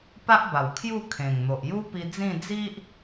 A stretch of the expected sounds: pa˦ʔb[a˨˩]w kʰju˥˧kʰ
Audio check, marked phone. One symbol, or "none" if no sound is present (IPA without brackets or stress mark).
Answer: a˨˩